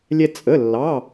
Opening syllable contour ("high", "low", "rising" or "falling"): high